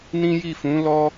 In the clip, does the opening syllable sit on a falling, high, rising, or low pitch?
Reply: high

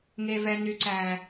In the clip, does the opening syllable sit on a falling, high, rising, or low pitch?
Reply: low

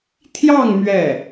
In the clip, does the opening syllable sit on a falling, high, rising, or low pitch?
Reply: falling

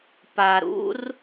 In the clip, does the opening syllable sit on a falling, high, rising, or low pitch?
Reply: low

